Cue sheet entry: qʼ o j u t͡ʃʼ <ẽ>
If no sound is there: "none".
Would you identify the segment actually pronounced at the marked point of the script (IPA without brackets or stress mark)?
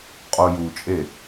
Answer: e